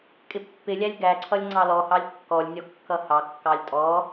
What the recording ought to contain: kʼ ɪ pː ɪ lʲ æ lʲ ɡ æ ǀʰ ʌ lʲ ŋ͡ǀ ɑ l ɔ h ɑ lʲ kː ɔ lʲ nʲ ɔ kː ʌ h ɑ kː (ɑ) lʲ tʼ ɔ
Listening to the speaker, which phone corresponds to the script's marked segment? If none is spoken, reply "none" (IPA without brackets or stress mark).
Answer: ɑ